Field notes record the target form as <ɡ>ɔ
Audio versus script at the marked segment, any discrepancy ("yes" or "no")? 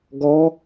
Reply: no